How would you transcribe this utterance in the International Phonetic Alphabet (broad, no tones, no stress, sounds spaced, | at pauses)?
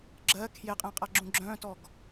ɡ͡ǁ ɜ kʰ j e qʼ ẽ qʼ a ɡ͡ǁ ũ ɡ͡ǁ œ̃ t ɔ ɡ